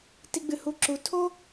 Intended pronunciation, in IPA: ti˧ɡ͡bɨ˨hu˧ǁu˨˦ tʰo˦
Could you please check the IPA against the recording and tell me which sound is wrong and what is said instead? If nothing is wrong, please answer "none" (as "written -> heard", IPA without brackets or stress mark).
none